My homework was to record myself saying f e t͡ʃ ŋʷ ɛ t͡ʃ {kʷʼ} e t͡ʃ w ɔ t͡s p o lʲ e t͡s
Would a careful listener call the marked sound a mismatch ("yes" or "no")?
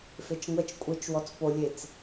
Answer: no